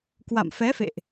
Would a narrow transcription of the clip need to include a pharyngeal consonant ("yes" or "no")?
no